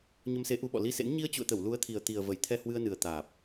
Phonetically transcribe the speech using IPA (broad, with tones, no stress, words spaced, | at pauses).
ɲə˧mse˨˦ʔu˨˦ɓɔ̰˧˨ li˧sḛ˧˥n ɲi˧ə̯t͡ɕṵ˧˨ə̯t̪ə˧˩w lu˨˦ə̯t̪ʰi˨˩ə̯ t̪i˨˩ə̯və˧˩j t̪ʰɛ˧hwɨ˧ə̯nɨ˨˩ə̯ t̪aː˨˩p̚